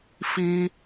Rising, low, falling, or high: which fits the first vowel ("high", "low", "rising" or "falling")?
high